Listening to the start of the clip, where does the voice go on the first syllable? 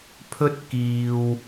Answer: high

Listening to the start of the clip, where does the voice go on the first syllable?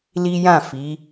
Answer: high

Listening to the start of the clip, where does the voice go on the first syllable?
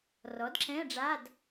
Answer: rising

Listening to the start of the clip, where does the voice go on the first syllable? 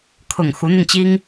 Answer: low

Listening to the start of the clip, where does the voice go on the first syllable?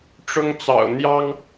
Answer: high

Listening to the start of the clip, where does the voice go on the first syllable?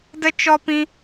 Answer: high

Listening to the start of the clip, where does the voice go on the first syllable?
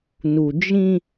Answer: low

